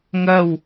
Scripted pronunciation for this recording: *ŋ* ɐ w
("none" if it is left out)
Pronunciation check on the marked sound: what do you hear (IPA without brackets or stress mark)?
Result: ŋ